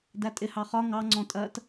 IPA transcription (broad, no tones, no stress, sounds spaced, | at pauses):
d æ tʼ ɪ h ɑ χ ɒ ŋ ɑ ŋ͡ǀ ɔ̃ tʼ ɜ t